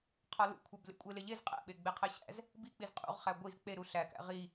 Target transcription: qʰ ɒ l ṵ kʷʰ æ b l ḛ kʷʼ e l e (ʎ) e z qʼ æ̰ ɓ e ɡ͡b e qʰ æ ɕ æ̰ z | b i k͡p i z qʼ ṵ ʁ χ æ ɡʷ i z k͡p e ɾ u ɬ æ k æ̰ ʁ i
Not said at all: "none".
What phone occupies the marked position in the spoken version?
ʎ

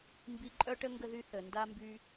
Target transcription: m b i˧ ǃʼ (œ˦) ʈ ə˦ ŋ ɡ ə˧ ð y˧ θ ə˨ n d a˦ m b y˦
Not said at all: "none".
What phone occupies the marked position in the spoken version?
œ˦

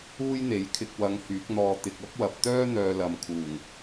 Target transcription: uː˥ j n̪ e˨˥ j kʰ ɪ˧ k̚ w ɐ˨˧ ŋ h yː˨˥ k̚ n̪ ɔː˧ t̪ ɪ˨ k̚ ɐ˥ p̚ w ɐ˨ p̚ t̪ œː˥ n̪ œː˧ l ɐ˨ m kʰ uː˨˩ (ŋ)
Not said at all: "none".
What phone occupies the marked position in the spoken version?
ŋ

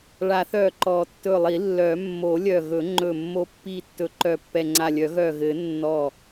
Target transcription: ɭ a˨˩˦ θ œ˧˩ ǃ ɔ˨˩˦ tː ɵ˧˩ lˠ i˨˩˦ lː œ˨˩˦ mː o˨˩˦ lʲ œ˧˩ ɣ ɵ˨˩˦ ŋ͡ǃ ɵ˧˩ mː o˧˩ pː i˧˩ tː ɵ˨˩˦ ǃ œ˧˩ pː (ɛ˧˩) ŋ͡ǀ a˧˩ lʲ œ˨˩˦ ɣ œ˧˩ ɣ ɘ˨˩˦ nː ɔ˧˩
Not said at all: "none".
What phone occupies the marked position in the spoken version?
ɛ˧˩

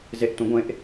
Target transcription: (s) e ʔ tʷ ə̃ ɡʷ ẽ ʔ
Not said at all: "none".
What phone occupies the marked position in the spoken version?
z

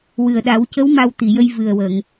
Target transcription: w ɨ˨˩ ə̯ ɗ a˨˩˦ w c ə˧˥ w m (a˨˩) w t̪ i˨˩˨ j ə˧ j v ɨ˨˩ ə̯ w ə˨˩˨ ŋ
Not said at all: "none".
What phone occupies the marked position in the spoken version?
a˧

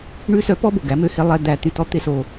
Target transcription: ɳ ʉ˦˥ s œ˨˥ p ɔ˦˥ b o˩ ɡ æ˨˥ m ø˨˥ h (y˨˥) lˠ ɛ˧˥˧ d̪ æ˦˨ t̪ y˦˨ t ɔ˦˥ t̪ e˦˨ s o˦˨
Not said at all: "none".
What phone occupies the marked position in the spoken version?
e˨˥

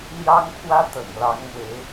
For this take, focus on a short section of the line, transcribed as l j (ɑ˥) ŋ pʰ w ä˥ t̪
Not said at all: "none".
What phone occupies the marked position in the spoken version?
ɑ˥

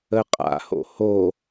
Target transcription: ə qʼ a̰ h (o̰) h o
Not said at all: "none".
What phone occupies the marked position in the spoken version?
o̰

